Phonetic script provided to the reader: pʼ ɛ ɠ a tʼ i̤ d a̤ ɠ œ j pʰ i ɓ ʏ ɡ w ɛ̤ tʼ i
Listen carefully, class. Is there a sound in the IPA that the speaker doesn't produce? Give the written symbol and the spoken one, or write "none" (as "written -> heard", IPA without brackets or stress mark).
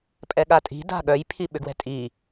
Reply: none